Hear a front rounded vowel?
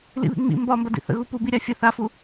no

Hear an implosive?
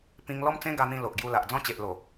no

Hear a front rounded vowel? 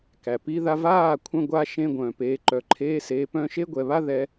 yes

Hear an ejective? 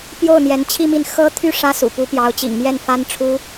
no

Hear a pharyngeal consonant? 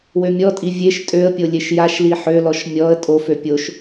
yes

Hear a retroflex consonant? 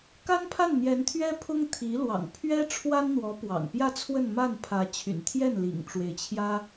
yes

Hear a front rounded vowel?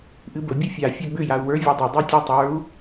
yes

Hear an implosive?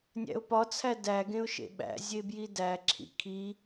yes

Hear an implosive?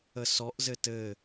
no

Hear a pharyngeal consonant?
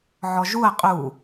yes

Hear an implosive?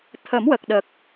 yes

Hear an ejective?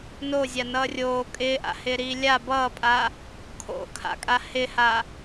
yes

